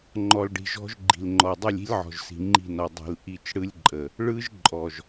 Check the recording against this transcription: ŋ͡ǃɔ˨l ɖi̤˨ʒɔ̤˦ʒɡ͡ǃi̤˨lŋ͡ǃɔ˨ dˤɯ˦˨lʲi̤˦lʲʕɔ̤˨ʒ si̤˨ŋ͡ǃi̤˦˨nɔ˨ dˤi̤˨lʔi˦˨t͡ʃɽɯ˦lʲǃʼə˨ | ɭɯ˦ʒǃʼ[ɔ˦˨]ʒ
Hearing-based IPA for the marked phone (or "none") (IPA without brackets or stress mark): ɔ˨